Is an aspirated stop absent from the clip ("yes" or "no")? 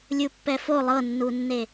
yes